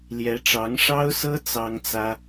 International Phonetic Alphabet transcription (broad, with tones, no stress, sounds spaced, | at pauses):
l j ɛ˧˥ ʈ͡ʂ ɑ˧˥ ŋ ʂ ɑ˥ ʊ̯ s ɤ˥ t͡s ɑ˥ ŋ t͡s ä˥